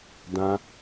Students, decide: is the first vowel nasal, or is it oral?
nasal